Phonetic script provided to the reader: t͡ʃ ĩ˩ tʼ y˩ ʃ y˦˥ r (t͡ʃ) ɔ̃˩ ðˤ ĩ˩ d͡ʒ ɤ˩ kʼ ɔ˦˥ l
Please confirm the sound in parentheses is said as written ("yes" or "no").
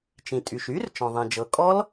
yes